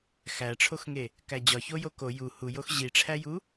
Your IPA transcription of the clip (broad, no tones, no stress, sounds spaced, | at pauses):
x æ ʈ͡ʂʰ o x ŋ e | k æ d͡ʑ ɒ ç o j o k o j u h u j o x ʑ i ʈ͡ʂʰ æ j u